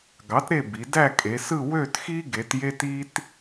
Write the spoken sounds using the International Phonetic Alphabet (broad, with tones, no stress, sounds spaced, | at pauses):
ɡ ɑ˨˥ t ɾ e˦˨ b i˩˧ d æ˦˨ kʼ e˩˧ s ɯ˦˨ w ø˦˨ t x i˦ ɡ e˩˧ t j e˦ t i˦ t